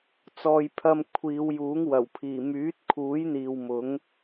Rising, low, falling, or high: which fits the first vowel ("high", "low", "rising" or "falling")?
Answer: low